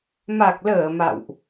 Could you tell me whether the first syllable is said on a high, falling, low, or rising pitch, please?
low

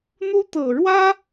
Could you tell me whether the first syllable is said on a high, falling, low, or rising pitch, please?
high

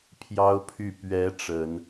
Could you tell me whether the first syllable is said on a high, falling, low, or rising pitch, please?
high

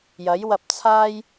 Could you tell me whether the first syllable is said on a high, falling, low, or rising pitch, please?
rising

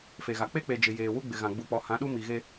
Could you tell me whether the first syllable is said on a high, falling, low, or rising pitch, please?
low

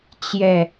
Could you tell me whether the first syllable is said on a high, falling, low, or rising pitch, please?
falling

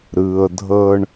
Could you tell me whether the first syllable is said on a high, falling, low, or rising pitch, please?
low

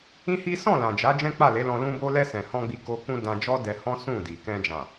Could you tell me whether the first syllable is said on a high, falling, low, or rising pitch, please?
high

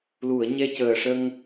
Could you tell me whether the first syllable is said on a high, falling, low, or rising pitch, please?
low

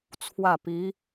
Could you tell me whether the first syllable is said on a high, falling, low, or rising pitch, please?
falling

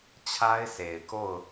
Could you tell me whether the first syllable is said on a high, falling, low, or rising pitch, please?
high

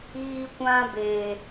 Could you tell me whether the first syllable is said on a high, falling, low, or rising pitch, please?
high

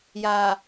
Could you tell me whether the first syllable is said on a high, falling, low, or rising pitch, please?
low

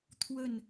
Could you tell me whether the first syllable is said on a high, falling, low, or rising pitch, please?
falling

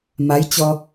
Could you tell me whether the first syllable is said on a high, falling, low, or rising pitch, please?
rising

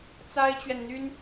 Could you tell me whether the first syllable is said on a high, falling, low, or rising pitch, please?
high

